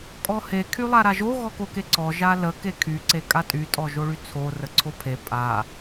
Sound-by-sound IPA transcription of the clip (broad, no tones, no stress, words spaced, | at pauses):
kʼɔhe kʰylˠaɾaʒo ɣɔkokeǀɔ ʒalə kekʰy ǀekʼatʼy tʼɔʒoɭyt͡sʰo rəǀʰopʰe pʼa